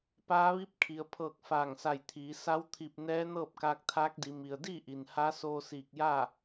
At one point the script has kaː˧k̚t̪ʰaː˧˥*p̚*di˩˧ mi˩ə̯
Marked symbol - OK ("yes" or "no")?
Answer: no